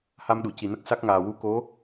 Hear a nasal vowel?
no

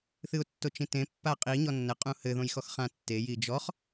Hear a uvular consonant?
yes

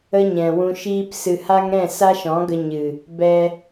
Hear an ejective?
no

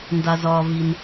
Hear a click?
no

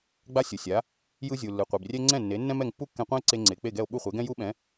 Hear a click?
yes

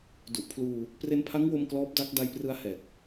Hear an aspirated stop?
yes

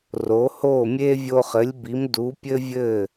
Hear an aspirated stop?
no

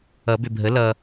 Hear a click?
no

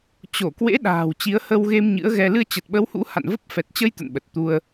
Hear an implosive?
yes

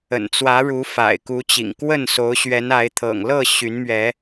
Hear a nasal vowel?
no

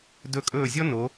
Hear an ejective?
yes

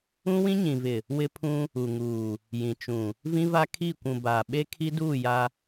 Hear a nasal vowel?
yes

